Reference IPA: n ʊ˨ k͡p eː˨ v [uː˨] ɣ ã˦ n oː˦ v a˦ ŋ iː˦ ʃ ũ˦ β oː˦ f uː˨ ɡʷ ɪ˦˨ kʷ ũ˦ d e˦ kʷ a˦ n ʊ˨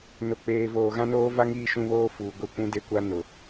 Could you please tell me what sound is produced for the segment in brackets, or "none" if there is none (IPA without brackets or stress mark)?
oː˨